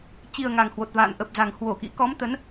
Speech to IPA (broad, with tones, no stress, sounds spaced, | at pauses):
t͡ɕ i˨˩ ə̯ ŋ a˨˩ ŋ h w o˨˩ t̚ v a̰ː˧˨ n ʔ ə˨˩ p̚ z a˨˩ ŋ h w o˧˩ k ḭ˧˥ k ɔ˨˦ m t̪ ə˨˦ n